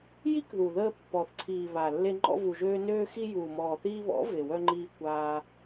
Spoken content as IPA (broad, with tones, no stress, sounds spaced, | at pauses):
j i˦ k ð u˨ ð əː˧ pː ɔ˨ θ ǀʰ iː˨ β a˨ lː e˧ ŋ͡ǃ ɔ̰˧ v u˨ ʒ øː˧ n øː˧ x i˧ j uː˨ m ɔː˨ θ iː˧ β ɔ̰˨˦ v e˨ w œ˧ ŋ͡ǃ iː˧ kʷ aː˧